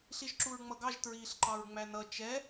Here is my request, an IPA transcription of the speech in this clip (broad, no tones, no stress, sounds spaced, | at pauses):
ɬ i ʒ ǁ u ɹ ŋ͡m ʌ ɡ ɑ ʒ t ɹ iː ɬ ǃ ɑ ɹ ŋ͡m æ n ʌ t͡ʃ ɛ